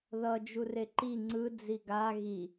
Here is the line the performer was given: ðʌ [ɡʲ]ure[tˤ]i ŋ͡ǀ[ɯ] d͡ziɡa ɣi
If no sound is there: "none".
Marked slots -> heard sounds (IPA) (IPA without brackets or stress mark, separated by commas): d͡ʒ, ǃ, ɯ